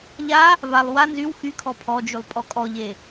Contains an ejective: yes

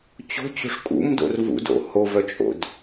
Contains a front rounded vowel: yes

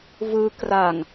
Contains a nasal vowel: no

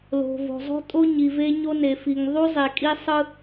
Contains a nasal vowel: no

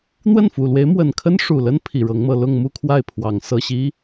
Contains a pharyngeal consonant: no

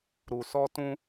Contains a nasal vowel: yes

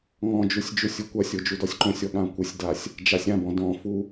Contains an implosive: yes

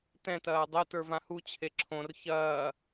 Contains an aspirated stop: yes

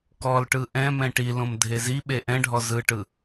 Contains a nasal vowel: yes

